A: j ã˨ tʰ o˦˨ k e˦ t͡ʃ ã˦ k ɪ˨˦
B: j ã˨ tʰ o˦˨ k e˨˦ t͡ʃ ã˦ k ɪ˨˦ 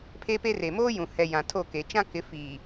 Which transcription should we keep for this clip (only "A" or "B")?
B